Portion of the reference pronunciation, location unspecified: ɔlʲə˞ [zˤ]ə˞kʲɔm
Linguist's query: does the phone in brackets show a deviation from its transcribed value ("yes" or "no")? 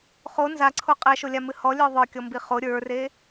yes